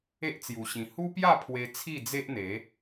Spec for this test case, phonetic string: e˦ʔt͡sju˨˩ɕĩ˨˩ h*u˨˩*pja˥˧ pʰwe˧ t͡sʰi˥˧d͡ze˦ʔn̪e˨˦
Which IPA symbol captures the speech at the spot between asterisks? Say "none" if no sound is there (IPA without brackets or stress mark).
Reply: u˦